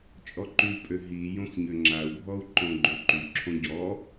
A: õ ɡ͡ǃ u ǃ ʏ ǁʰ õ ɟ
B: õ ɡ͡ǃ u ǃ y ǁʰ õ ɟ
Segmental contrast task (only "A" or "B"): B